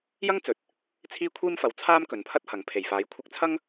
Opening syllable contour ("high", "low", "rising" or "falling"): high